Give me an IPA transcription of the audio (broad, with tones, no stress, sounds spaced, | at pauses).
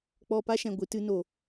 k͡p ɔ˧ p a˦ ʃ ɛ̃˨ ɡʷ ɨ˨ t ɨ˧ n o˨